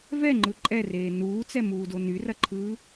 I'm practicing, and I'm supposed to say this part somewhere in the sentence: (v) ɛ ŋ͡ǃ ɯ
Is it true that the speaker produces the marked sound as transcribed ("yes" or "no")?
yes